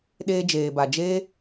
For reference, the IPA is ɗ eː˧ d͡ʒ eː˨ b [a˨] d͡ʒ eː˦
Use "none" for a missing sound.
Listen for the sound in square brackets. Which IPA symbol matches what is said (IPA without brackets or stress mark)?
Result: a˨